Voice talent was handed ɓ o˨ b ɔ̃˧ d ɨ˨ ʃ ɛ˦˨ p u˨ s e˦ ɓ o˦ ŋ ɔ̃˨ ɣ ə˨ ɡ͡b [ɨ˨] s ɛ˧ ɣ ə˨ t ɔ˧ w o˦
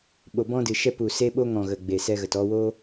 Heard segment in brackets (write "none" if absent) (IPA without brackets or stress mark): e˨